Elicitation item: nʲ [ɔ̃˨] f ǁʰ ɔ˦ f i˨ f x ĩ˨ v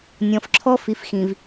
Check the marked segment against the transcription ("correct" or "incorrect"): correct